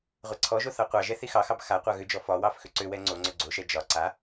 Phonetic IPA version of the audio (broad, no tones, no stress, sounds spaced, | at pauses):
ʁʷ ɛ ǀʰ ɔ ʒ o θ ɑ qʷ ɑ ʒ ɛ θ i x ɑ x ɑ b x a qʷ ɑ ɣ ʏ d͡ʒ ɔ f ɒ w ɑ f x ʏ ǀ ʏ w ɛ ŋ͡ǀ o ŋ͡ǀ ʏ ɡ͡ǀ o ʃ ɛ d͡ʒ ɒ ǀ a